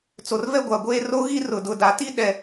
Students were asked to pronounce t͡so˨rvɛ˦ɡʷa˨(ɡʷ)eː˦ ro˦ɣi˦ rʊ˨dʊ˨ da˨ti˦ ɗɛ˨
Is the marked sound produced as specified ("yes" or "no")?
yes